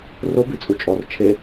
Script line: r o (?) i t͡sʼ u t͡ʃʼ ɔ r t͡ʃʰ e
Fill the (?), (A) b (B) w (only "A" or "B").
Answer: A